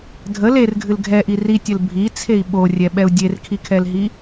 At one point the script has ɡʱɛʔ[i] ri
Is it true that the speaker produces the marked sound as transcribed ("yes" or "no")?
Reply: yes